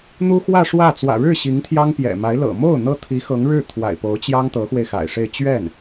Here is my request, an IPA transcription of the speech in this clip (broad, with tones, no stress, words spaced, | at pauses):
n̪u˥xwä˥˧ʂwä˥˩ t͡swä̰˨˩ɻɻ̩˥˩ ɕi˧˥ŋt̪ʰjɑ˥ŋpjɛ̰˨˩ma˧˥ɪ̯ lɤ̰˨˩mo˥˩ʊ̯ n̪ɤ˥t̪ʰi˧˥ xɤ˧˥ŋɻɻ̩˥˩ t̪ʰwa̰˨˩ɪ̯po˧˥ʊ̯t͡ɕjɑ˥ŋ t̪ɤ˧˥xwe˧ɪ̯xa̰˨˩ɪ̯ʂe˥˧ɪ̯ t͡ɕɥɛ˥˩n